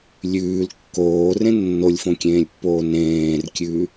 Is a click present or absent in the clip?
absent